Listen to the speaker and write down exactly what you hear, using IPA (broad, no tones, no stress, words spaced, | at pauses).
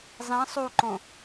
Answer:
zˤĩ sˤuǃõ